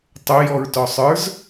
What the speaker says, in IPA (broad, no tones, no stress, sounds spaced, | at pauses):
tˤ ʊ j ɔ ɹ t ɔ sˤ ə˞ z